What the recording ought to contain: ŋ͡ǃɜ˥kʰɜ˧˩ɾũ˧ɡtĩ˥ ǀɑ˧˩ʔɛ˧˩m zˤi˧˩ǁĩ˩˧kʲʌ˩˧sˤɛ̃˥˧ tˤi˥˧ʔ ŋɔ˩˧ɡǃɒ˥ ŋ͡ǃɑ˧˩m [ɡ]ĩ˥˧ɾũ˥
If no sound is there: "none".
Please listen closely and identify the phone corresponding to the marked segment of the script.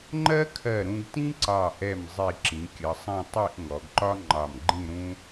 ɡ͡ǃ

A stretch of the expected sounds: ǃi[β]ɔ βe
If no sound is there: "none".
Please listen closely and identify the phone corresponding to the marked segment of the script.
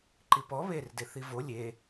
p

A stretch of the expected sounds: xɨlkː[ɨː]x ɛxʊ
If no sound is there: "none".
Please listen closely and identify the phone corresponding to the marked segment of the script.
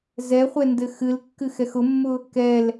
ɨ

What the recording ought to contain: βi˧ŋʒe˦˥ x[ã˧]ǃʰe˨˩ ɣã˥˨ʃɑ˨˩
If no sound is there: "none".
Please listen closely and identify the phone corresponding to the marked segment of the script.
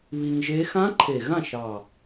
ã˦˥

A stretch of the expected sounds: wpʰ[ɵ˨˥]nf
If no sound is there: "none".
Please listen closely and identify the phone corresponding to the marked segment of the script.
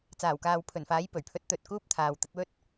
ɵ˨˩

